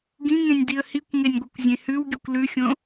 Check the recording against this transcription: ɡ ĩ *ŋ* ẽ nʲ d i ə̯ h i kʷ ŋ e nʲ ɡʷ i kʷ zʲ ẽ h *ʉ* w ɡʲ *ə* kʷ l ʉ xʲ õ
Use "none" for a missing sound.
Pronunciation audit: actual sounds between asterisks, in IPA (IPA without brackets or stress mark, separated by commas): ŋ, ʉ, ɵ